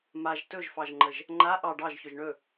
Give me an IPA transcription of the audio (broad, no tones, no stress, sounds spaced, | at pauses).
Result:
m a ʒ t ɵ ʒ f ɑ ʒ ŋ͡ǃ ə ʒ | ŋ͡ǃ a ʔ ɑ ɖ ɑ ʒ ç ɵ ʒ ɳ ɵ